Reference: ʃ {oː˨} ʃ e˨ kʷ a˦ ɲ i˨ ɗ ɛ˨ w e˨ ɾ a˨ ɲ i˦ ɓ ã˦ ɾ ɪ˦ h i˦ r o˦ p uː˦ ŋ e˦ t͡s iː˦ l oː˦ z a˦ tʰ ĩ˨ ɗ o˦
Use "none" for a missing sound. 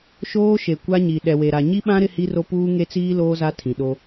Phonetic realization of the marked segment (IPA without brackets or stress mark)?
oː˦